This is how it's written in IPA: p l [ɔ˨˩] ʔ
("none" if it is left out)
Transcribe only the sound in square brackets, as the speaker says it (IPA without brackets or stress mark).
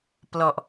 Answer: ɔ˨˩